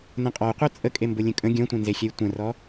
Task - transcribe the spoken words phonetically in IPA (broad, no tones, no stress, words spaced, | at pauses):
nə̃qʼɔqʷœ t͡sʼəkʼembʊ lʲə̃kʼə̃ ɡʲɔ̃tʷɛ̃nzexʲɛj tʷə̃rɔ